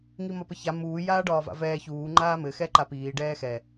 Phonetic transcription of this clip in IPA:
ŋ i m ɒ p ə ç a m uː j aː ɖ ɒː v a̰ v ɛː ç uː ŋ͡ǃ aː m ɘ x ɛ ǃ a p iː ɖ ɛː x ɛ

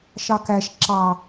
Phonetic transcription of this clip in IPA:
ʃ ɑ k æ ʃ ǁ ɑ

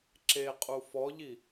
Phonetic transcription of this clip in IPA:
ǁ e qʼ u f ɔ ʎ i

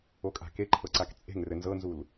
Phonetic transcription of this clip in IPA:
o kʼ a̤ k e ǃʰ ɤ ǀ a k t͡sʼ e̤ ŋ r ɘ n z ɤ n z u l

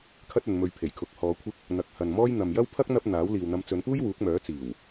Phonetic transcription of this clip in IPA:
kʰ ɐ˥ t̚ ɵ˨˧ n m ɵ˧ ɥ pʰ e˨˩ j kʰ ʊ˨ k̚ h ɔː˨˧ kʷʰ ɪ˥ k̚ | n̪ ɐ˨ k̚ h ɐ˨ n m ɔː˥ j n̪ ɐ˨ m j ɐ˥ w pʰ ɐ˥ k̚ n̪ ɐ˥ p̚ n̪ aː˨˥ w l iː˨ w n̪ ɐ˧ m t͡s ɵ˨˧ n p uː˥ j w uː˨˥ k̚ m œː˨˥ t͡s iː˨˩ w

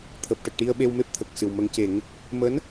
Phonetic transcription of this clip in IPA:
t̪ʰ əː˨˩ p̚ ʈ ə˨˩ k̚ ʈ i˧ ə̯ ɓ e˧ w m e˦˥ p̚ t̪ʰ ə˨˩ k̚ s ɨ˨˩ w m ə˧ ŋ c e˨˩˦ ŋ | m əː˧˥ n

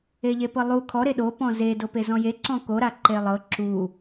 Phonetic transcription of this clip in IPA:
e ʎ e p ɤ lˠ u kʰ ɔ ɾ e ɗ o p ɔ̃ z e d o p e z ɔ̃ j e ǀ ɔ̃ k o ɾ a ǃ e lˠ ɤ ǁ u

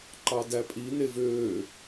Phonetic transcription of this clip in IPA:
ǃ ɑ d æ pʼ i n e v øː

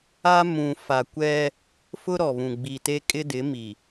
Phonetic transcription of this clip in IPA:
a˦ m ũ˨ f a˨ kʷ ɛ˦ | f ʊ˦ ɾ ɔ˨ β ũ˨ ɡ͡b i˨ t e˦ kʼ ɪ˦ d ɪ˨˦ m i˨

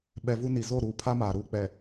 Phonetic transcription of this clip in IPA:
ɓ ɛ˨ v u˦ n i˨ z o˦˨ ɾ uː˨ pʰ a˦ m aː˨ ɾ uː˦ k͡p ɛ˨

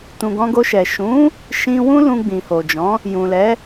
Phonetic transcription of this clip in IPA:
t ũ˨ ɡ ɔ̃˧ ɡ o˧ ʃ ɛ˨ ʃ ũ˨˦ | ʃ ĩ˧ w ũ˦ l ũ˧ ɡ͡b ĩ˨ h o˨ d͡ʒ ɔ̃˨˦ | j ũ˨ l ɛ˨˦

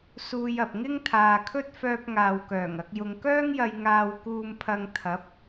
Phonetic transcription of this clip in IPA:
s uː˧ j ɐ˨ p̚ ŋ ɪ˥ ŋ t̪ʰ aː˨ kʰ ɵ˥ t̚ f œː˧ p̚ ŋ aː˨ w k œː˨˩ ŋ ɐ˧ k̚ j ʊ˨ ŋ k œː˥ ŋ j ɐ˧ j ŋ aː˧ w k uː˧ m pʰ ɐ˧ ŋ t̪ʰ ɐ˨˥ p̚

